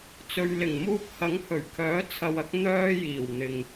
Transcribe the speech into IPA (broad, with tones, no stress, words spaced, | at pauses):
t͡sɵ˨ɥlɪ˨˩ŋ muː˧p̚hɐ˨˥ŋhɵ˨˩ɥkʰœː˨˥ t͡sʰɐ˧wɐ˥k̚ n̪œː˥ jiː˨˩wn̪ɪ˨ŋ